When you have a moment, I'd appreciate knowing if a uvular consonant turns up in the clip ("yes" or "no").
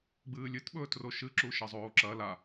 no